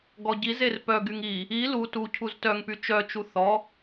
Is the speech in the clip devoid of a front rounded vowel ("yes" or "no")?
no